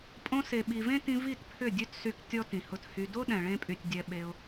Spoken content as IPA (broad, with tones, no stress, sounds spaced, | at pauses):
pʼ õ˧ s e˨ ɓ i˨ v ẽ˦ t ĩ˧ v i˦˨ t pʰ ʏ˦˨ dʲ ø˦ t s y˧ k tʲ ɔ˦ t ĩ˨ h ʊ˧ t h y˧ d o˦ ɗ ɛ̃˨ ɭ ẽ˧ pʼ y˨ tʲ dʲ ɛ˨ ɓ e˧ ʊ̯